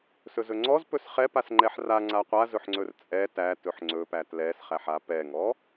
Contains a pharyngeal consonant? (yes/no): yes